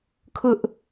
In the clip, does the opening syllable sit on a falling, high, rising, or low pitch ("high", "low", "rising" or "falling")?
high